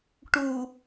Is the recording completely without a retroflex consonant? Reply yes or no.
no